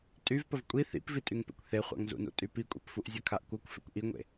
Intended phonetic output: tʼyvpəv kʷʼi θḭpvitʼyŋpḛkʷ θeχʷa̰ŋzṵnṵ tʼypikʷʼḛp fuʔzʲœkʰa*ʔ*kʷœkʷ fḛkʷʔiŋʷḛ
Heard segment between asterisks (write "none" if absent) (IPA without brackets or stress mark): ʔ